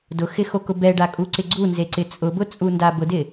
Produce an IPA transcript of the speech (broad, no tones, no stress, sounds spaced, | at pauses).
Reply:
d ʊ x ɪ x o k ʊ b ɛ ɖ a kʼ u ǀ ɪ ɡ͡ǀ u n z e ǀ ɪ t͡sʼ ʊ b ʊ t͡sʼ u n d a b ʊ d ɪ